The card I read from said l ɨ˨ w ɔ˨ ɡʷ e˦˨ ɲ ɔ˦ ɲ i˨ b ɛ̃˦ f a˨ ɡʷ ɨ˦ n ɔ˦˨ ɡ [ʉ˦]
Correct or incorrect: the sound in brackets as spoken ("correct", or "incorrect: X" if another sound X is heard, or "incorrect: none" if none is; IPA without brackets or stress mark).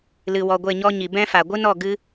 incorrect: ɨ˦